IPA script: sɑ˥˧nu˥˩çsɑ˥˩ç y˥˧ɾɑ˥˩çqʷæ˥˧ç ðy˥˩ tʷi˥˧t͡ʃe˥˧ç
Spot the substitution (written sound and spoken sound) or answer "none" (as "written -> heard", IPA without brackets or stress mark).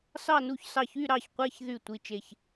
none